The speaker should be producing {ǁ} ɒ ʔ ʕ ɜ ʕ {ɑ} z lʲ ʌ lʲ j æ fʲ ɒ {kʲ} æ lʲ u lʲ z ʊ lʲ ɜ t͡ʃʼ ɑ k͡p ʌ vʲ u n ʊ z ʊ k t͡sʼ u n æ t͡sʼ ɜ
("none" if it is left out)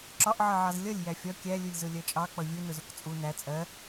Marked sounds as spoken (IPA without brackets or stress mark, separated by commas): ǁ, ɑ, kʲ